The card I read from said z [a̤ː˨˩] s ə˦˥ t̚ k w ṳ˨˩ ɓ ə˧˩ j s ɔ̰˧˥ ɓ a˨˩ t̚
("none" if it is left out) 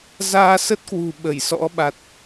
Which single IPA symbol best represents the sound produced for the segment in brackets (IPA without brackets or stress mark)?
aː˧